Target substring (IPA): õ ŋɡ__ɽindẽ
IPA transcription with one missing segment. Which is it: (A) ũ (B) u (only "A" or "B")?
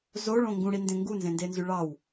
A